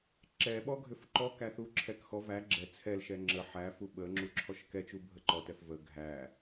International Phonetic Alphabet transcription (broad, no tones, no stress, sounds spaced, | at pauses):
ǁ ɛ ɓ ɔ ɡʱ ʏ f ǃ ɔ k æ θ u ǁʰ ɛ k x ɔ v æ ɡ͡ǁ ɛ t͡sʰ ɛ l ʃ ɛ ŋ͡ǁ ə ħ æ f u ɓ ə ŋ͡ǁ u ǁʰ ɔ ʃ k ɛ t͡ʃ u bʱ ə ǃ ɔ t ɛ f v ə ɡʱ æ